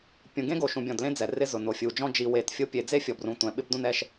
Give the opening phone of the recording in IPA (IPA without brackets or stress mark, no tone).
pʲ